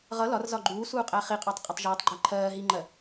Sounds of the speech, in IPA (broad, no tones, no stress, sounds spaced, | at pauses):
ʁ ʌ l ɒ r z ɒ ɡ͡ǃ uː s uː qʼ æ χ i qʼ ɑ tˤ qʼ ɒ tˤ ʒ ʌː tˤ ɡ͡ǃ æ ǃʰ ɜː ɦ i ŋ͡ǃ ɜ